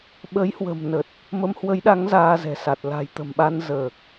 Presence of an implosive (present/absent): present